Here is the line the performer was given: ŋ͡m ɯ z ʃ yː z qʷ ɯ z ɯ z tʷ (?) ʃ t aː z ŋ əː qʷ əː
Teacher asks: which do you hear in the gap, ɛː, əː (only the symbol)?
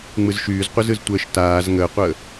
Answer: əː